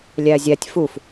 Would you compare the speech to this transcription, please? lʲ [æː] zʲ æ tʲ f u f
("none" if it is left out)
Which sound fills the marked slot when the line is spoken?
æː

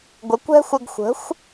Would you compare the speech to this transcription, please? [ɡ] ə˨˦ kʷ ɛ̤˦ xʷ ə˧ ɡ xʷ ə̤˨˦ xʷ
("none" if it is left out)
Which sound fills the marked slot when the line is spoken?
ɡʷ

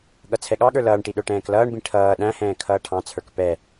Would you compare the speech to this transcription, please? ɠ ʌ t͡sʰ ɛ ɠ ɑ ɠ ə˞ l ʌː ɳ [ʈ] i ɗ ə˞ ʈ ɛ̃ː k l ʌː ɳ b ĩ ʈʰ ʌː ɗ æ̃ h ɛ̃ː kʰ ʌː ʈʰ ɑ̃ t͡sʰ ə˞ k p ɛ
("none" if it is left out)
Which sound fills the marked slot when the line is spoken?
ʈ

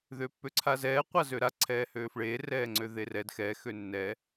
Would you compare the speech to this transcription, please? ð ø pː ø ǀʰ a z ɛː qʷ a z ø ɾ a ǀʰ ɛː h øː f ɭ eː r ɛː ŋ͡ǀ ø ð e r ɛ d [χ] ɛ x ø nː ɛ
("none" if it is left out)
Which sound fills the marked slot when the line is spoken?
x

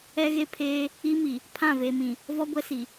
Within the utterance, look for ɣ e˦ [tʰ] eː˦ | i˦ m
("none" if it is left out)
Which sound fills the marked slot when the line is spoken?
pʰ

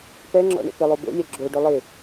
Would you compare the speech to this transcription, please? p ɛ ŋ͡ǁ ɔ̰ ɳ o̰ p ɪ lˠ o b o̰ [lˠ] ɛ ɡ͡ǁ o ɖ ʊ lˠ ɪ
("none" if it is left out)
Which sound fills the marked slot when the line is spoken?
lʲ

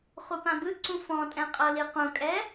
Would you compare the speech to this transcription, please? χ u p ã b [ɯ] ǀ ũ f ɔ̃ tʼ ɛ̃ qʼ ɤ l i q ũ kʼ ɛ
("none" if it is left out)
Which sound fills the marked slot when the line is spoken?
ɯ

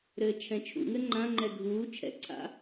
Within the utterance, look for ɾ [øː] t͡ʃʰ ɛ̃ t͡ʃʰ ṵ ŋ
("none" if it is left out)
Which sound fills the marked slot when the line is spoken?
ɘː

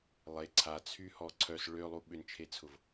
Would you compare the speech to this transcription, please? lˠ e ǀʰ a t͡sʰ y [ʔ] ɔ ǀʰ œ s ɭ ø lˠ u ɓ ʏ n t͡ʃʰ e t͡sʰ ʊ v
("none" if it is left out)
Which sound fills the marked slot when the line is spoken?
h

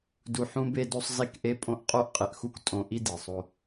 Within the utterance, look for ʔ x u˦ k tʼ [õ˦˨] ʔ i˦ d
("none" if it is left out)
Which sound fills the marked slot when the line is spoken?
õ˦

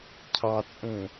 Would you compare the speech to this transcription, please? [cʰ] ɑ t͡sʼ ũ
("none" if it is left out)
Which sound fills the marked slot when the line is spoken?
cʰ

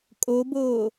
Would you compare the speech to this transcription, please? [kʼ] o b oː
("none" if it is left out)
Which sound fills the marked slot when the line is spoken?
kʼ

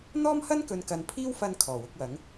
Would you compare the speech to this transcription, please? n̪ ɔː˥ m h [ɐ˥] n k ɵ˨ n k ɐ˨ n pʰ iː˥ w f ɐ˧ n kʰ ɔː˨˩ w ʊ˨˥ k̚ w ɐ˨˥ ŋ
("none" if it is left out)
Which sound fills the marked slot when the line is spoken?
ɐ˥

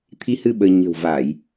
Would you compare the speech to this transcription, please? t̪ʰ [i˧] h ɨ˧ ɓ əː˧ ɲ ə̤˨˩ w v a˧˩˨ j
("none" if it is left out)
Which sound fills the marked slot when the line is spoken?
i˧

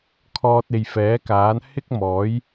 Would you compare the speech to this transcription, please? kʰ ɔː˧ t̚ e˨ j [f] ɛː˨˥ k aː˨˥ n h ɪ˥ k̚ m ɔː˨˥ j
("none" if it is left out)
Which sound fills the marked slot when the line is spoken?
f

